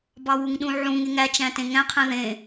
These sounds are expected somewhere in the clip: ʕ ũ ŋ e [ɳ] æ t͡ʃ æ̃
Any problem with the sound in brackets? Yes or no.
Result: yes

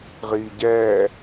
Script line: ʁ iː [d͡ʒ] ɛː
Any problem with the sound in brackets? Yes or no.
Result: yes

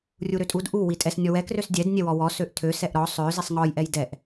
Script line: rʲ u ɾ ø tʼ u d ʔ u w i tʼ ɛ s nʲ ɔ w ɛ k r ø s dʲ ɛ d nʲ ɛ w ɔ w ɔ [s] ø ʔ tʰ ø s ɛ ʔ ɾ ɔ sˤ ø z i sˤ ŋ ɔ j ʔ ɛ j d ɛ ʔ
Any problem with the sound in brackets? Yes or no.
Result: no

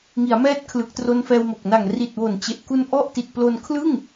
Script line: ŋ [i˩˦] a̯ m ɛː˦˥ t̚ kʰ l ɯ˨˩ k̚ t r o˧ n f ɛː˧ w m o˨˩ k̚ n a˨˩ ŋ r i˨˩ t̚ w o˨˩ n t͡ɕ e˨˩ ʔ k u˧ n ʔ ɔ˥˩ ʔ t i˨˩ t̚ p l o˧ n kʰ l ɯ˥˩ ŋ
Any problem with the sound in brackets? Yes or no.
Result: no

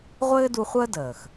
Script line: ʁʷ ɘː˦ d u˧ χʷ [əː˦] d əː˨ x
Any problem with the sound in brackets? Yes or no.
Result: no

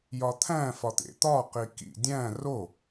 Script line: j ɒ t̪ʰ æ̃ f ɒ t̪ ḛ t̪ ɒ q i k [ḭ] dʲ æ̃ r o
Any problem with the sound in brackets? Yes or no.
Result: no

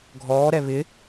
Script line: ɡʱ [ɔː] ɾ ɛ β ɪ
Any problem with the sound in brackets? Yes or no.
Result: no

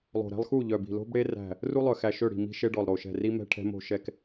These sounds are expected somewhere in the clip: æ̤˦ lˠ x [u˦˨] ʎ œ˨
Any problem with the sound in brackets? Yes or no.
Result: no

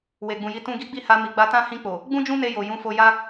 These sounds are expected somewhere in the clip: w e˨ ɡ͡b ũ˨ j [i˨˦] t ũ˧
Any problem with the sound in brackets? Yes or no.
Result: no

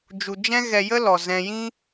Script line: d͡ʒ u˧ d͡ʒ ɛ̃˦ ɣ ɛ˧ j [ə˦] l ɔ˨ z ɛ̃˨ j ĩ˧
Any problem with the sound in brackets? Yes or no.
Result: no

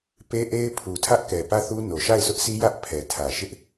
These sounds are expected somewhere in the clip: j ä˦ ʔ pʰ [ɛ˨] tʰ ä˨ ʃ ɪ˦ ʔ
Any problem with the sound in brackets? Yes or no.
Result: no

